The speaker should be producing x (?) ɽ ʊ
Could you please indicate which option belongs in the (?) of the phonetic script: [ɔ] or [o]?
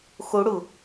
o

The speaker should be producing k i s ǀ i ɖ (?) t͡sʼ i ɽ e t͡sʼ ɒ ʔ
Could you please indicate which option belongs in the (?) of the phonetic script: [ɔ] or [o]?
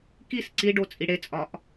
o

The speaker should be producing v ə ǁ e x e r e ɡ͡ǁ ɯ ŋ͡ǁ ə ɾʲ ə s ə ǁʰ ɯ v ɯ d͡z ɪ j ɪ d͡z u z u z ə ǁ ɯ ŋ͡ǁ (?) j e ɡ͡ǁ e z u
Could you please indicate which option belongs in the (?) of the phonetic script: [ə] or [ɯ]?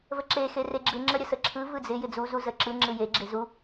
ɯ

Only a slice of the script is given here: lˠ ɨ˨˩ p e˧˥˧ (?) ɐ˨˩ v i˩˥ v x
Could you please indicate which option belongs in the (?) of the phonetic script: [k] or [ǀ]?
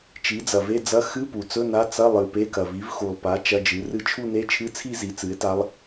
k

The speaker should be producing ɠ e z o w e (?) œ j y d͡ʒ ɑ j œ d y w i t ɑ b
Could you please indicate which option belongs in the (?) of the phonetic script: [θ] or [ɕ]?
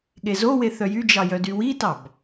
θ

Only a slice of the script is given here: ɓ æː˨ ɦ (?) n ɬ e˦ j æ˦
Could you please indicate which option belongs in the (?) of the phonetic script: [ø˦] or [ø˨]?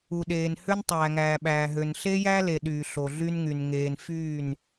ø˨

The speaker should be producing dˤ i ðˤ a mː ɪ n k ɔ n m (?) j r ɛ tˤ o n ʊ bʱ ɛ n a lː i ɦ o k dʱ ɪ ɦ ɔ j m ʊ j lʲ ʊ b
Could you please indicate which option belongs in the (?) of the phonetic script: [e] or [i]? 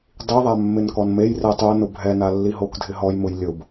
e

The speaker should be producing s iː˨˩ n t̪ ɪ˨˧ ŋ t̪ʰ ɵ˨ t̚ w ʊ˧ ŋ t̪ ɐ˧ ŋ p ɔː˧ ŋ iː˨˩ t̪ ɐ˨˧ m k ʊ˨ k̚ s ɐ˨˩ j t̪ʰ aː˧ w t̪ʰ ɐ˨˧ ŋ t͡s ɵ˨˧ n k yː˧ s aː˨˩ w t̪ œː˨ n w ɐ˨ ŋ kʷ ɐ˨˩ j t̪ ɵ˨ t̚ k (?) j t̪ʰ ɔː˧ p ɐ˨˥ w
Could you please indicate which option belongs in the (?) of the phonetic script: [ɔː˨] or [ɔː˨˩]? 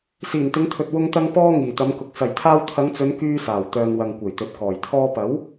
ɔː˨˩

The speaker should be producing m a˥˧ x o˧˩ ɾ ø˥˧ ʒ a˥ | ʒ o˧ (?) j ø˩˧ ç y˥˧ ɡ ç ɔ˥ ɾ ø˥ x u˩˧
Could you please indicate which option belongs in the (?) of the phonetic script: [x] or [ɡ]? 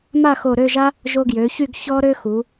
ɡ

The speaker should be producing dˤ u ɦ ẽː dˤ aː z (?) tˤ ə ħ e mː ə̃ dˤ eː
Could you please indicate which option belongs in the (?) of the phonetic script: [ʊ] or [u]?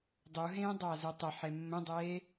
u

